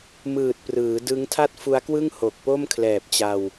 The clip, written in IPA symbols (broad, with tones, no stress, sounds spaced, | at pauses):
m ɯː˨˩ t̚ p r ɯː˩˦ d ɯ˦˥ ŋ tʰ a˥˩ t̚ f u˦˥ a̯ k w ɯ˥˩ ŋ h o˨˩ k̚ p o˥˩ m kʰ l ɛː˨˩ p̚ t͡ɕ a˧ w